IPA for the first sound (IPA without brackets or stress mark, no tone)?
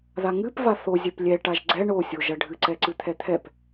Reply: ð